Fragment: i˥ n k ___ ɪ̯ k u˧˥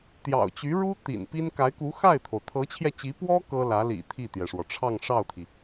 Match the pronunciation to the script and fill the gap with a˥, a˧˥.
a˧˥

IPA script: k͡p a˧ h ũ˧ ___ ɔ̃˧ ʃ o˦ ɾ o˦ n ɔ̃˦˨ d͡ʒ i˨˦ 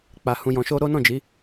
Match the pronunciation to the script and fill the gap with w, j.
j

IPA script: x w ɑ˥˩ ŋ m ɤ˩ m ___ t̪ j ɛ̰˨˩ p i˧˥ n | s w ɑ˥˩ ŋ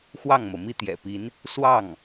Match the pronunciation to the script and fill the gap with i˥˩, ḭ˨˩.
i˥˩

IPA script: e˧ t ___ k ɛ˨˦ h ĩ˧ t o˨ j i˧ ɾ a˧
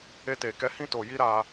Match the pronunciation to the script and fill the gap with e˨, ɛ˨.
e˨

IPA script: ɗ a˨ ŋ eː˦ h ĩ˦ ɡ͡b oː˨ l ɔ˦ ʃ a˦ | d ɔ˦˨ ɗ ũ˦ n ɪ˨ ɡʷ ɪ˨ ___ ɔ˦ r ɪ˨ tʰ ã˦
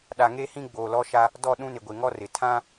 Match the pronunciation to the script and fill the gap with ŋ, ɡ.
ŋ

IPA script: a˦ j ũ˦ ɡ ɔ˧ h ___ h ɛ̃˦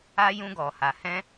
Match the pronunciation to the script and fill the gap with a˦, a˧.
a˧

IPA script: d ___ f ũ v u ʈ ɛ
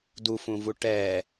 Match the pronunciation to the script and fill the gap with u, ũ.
u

